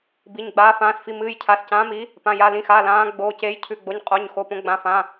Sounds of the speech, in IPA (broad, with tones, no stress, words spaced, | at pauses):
bi˩˧˩ɲɡ͡baː˨˦ fãː˩˧˩sfi˩˧˩mɨː˩˧˩j cʰa˩˧˩scãː˨˦mi˨˦ | pã˩˧˩ja˩˧˩lĩ˩˧˩xaː˩˧˩ lãː˨˦ ɡ͡boː˩˧˩ceː˨˦jcʰʉ˩˧˩ɡ͡bo˩˧˩ɲ qʼo˩˧˩ɲ xo˩˧˩põ˨˦ɡ͡bã˩˧˩fã˩˧˩